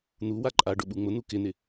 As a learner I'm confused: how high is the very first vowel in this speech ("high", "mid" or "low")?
high